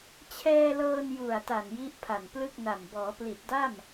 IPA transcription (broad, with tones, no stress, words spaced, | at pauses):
t͡ɕʰɛː˧lɤː˧n ju˨˩a̯ta˨˩n ji˦˥ʔpʰa˨˩nplɯ˥˩k̚na˨˩m bɔː˩˦pli˨˩t̚da˥˩m